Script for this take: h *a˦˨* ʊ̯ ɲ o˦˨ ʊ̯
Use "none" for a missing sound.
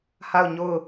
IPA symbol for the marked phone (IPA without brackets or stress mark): a˦˨